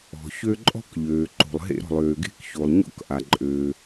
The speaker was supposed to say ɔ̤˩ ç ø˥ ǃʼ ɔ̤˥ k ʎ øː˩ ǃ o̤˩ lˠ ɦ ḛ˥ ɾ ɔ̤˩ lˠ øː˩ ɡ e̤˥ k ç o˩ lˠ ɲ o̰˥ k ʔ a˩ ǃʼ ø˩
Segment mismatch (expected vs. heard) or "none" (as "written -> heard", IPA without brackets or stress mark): none